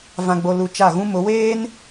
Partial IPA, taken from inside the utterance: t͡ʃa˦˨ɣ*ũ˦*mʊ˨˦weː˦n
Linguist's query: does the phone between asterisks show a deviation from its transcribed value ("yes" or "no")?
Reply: no